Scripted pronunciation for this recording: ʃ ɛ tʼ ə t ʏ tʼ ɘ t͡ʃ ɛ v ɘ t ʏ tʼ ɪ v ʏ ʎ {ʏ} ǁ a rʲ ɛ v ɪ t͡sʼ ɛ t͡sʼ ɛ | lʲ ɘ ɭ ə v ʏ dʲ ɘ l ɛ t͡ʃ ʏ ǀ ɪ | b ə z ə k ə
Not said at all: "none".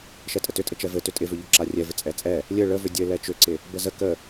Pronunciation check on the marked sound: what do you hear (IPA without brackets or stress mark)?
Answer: ʏ